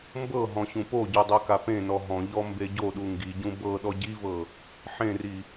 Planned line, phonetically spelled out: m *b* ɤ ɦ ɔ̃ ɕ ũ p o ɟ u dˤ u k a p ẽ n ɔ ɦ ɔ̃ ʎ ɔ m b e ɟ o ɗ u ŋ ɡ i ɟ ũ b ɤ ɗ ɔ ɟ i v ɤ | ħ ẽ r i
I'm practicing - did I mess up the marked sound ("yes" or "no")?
no